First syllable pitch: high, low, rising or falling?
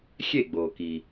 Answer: falling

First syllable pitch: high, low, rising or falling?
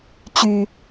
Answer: low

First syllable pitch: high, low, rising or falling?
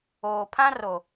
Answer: low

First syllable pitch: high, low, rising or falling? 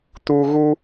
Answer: low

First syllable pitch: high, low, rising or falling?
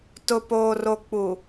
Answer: low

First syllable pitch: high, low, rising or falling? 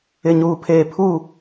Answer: low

